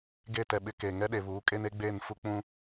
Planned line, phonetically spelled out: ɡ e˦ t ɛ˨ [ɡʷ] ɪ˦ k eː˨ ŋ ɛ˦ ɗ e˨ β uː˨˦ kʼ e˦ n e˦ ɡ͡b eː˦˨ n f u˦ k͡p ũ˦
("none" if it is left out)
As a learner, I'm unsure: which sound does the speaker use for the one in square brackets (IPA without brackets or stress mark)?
ɓ